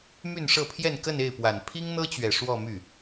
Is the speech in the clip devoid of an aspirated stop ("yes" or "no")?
no